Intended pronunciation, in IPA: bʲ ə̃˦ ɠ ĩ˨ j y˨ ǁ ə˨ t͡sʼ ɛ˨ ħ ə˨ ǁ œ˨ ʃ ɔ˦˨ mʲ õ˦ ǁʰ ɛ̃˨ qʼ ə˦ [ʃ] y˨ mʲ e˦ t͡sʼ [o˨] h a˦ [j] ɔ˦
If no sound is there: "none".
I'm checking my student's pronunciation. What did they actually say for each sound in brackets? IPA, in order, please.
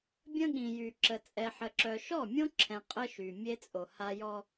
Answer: ʃ, o˨, j

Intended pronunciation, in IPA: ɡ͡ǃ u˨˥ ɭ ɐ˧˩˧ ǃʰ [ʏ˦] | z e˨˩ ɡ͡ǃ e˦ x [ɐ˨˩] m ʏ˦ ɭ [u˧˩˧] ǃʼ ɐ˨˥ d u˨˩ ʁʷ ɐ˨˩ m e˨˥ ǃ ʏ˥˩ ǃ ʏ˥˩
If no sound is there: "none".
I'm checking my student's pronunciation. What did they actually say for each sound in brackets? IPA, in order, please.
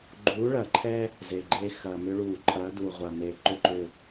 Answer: ɛ˦, ɐ˨˩, u˧˩˧

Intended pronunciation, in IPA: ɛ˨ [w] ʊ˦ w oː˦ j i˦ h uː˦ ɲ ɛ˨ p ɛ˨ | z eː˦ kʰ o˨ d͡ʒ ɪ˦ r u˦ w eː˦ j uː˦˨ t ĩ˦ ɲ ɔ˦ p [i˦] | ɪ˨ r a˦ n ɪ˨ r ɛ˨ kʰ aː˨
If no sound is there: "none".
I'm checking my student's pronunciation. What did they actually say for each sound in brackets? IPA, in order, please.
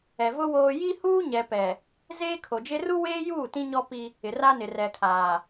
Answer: v, i˦

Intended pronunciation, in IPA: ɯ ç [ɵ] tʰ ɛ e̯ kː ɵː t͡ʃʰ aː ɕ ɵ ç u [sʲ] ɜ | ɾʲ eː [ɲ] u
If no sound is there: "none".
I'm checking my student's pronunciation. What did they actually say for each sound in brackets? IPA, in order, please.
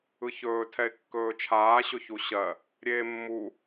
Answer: ɵː, ɕ, mː

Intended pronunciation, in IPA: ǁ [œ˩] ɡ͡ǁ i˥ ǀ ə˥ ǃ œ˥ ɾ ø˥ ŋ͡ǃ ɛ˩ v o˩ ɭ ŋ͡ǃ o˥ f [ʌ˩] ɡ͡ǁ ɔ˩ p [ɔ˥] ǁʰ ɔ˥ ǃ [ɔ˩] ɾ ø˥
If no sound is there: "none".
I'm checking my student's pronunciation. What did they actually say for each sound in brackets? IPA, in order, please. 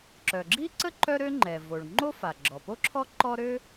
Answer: œ˩, a˩, o˥, ɔ˥

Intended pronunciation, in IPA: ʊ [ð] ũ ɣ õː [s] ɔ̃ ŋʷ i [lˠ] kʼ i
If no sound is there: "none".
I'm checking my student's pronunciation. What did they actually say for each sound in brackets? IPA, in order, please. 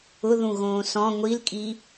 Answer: ð, s, l

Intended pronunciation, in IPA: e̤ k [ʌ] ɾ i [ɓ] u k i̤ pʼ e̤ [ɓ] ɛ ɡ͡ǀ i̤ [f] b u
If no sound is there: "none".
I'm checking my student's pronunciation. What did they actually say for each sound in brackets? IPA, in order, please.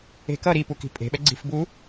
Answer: ʌ, p, ɓ, f

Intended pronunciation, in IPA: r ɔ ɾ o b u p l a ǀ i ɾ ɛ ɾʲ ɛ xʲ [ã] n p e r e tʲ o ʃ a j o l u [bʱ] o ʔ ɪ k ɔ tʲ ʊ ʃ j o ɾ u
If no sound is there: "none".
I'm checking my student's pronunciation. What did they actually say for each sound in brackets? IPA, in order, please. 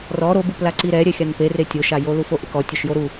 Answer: a, f

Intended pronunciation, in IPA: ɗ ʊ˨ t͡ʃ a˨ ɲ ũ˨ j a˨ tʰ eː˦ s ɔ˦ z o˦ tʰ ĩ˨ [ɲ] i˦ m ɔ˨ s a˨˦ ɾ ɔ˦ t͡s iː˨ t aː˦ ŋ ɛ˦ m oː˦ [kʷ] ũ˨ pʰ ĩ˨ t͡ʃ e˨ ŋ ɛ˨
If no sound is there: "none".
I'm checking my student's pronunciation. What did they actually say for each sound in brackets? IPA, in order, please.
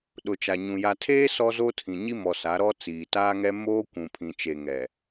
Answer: ɲ, kʷ

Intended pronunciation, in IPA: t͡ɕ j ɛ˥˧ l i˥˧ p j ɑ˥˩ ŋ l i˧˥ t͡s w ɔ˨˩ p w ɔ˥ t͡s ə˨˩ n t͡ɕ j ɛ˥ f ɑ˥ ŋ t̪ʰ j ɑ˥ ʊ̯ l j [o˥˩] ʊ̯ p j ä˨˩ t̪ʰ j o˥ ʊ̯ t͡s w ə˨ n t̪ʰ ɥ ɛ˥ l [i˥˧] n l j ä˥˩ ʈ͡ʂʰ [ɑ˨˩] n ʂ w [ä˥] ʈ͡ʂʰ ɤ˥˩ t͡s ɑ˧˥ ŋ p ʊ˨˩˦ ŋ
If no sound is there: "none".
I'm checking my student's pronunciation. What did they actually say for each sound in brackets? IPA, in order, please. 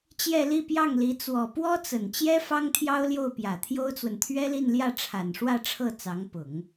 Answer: o˥˩, i˥˧, a˨˩, ä˥˧

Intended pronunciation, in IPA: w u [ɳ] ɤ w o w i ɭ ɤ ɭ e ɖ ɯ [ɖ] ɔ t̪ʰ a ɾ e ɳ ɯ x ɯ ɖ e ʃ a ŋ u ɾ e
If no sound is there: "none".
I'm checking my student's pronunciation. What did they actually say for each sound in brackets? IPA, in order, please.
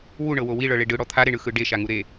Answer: ɳ, ɽ

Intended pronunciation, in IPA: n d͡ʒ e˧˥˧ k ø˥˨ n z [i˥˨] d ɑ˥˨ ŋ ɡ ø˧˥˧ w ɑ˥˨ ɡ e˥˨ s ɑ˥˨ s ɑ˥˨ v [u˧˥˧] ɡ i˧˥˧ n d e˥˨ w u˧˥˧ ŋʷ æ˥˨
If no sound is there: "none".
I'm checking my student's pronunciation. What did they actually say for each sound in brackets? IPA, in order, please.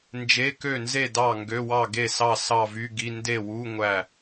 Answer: e˥˨, y˧˥˧

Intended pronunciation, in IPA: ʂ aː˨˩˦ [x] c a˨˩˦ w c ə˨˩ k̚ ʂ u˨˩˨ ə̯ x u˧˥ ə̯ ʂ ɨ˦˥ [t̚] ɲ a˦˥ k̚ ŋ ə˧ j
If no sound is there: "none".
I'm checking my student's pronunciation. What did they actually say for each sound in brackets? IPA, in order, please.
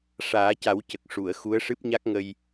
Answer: none, p̚

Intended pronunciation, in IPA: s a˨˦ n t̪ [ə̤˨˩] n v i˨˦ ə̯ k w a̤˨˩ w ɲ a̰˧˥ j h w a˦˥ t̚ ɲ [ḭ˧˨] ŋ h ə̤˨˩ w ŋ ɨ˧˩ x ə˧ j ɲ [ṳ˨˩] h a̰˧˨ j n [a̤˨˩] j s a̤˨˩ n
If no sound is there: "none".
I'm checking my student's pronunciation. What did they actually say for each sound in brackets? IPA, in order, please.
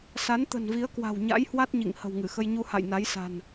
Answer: ə̤˨˩, ḭ˧˨, u˧, a˨˦

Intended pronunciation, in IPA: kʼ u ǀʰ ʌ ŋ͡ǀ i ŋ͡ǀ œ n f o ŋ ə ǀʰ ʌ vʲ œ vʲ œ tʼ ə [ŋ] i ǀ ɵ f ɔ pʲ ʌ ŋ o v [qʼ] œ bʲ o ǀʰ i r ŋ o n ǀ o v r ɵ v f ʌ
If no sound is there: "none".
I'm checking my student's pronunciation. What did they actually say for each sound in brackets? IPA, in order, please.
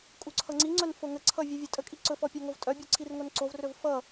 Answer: kʼ, tʼ

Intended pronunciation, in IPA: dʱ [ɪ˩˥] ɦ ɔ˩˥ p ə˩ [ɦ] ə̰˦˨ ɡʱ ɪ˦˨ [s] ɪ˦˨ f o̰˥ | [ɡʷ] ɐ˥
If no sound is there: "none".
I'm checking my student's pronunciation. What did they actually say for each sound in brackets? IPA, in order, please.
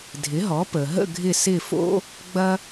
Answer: ɪ˩˥, ɦ, s, ɡ͡b

